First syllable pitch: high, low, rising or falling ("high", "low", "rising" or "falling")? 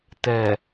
low